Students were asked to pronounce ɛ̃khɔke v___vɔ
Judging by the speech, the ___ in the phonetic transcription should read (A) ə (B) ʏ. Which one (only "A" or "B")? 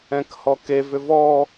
B